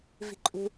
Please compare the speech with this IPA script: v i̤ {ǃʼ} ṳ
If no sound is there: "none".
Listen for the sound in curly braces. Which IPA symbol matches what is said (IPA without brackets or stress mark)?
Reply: ǃʼ